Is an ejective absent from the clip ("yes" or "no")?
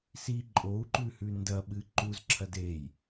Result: no